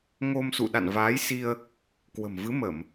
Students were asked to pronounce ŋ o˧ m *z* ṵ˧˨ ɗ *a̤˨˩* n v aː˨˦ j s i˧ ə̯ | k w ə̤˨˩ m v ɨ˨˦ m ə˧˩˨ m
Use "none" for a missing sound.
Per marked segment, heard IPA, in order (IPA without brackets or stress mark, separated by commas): s, a̰˧˨